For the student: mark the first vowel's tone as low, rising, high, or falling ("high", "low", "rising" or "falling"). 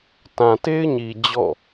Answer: low